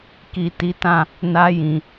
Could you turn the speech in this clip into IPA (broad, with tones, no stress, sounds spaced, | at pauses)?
k i˨ t i˨˦ t ã˦˨ | n a˧ j ĩ˨